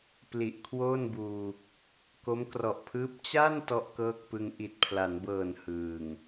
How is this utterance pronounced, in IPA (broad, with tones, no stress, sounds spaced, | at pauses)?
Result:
p l i˨˩ ʔ kʰ w oː˥˩ n b uː˧ | k o˦˥ m k r ɔ˨˩ ʔ pʰ ɯː˦˥ p̚ t͡ɕ a˥˩ n t ɔ˥˩ ʔ k ɤː˥˩ k̚ p ɯ˧ ŋ ʔ i˨˩ t̚ pʰ l a˩˦ n b ɤː˨˩ n h ɯː˨˩ ŋ